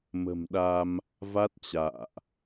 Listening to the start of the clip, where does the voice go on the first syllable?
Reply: low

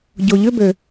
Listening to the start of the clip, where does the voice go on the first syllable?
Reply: low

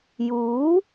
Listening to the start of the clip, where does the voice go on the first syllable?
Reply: rising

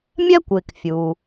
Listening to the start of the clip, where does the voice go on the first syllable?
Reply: high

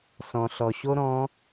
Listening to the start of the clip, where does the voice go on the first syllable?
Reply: low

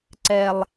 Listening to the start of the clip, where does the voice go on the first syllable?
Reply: low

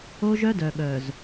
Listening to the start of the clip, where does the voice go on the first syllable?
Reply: high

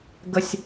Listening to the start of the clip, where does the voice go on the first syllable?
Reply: high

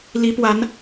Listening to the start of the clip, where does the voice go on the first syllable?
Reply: rising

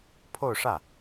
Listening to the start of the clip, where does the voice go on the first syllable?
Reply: falling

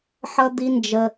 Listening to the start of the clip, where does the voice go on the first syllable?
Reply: high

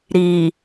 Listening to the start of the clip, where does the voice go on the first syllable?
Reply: low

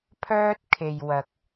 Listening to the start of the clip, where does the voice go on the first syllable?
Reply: high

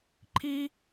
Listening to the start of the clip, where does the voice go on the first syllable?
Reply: high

